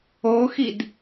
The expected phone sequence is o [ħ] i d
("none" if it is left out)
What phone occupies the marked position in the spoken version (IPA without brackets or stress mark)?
x